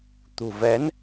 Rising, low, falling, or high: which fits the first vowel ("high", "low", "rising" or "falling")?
low